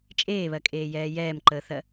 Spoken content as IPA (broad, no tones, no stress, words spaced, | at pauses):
t͡ʃʼeːβɜkʼeːjɛː jɛːmǃəːθɜ